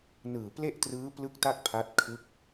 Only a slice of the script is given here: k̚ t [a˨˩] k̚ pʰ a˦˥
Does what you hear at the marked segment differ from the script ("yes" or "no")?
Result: yes